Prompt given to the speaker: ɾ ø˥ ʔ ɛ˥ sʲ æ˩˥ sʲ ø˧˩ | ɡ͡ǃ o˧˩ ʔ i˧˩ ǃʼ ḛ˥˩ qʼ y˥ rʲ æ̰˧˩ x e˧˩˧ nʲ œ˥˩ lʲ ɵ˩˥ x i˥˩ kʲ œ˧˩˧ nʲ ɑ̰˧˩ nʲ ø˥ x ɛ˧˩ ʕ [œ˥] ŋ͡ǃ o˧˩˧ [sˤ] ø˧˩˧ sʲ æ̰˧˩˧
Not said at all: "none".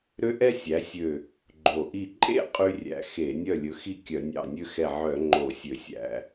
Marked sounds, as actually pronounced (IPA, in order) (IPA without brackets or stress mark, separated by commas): œ˧˩˧, sʲ